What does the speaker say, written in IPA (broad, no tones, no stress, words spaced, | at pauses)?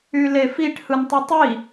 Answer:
ylefiʈ hɯntˤɯtˤi